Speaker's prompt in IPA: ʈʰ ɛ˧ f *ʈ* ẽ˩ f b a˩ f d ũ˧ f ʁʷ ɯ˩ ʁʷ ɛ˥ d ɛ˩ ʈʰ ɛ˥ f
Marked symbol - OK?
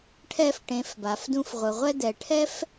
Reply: yes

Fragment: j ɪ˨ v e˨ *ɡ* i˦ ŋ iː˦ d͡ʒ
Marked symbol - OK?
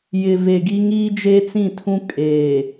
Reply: yes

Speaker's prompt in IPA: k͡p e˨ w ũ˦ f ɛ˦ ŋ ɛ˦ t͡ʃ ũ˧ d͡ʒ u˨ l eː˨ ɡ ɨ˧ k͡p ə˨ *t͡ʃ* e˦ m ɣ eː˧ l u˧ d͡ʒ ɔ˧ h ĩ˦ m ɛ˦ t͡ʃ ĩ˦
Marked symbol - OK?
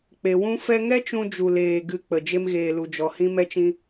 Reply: no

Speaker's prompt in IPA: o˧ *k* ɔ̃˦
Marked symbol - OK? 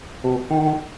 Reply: yes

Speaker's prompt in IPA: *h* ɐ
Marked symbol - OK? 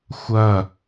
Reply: no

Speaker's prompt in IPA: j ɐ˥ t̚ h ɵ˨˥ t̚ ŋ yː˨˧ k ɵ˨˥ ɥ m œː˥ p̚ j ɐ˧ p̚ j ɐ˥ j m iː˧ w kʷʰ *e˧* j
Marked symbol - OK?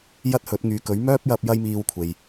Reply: no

